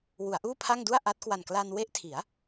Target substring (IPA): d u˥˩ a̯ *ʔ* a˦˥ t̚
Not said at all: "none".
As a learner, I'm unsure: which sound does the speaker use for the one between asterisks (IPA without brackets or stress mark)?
ʔ